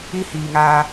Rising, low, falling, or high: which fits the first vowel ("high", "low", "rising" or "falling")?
high